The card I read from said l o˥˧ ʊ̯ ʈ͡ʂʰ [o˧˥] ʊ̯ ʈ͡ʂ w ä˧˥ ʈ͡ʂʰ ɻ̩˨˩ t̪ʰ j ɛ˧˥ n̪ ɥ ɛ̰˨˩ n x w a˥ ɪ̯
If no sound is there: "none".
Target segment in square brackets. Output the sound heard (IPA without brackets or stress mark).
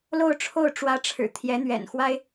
o˥˩